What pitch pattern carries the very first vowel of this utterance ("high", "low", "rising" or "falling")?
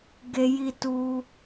high